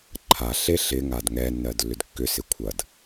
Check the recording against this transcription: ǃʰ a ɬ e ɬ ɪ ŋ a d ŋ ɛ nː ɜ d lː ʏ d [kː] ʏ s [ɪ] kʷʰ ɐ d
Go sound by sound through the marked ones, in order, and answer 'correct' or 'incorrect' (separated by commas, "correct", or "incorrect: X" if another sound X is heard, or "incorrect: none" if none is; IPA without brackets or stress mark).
correct, correct